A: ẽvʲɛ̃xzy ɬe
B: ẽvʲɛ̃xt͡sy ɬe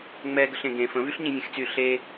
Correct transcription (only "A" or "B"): B